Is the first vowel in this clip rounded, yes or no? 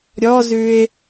yes